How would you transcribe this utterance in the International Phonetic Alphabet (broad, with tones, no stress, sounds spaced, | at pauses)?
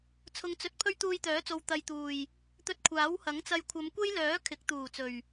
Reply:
t͡sʰ ʊ˨ ŋ t͡s ɵ˨˥ t̚ pʰ ɵ˥ ɥ t̪ uː˧ j t̪ œː˨˥ t͡s o˨ w t̪ ɐ˨ j t̪ uː˨˩ j | t̪ ɵ˧ t̚ kʷʰ aː˨˥ w h ɐ˨˥ ŋ t͡s ɐ˧ j kʷʰ ɐ˨˧ m kʷ e˥ j l œː˨˥ kʰ ɪ˨˥ k̚ t̪ uː˨˩ t͡s ɵ˨˩ ɥ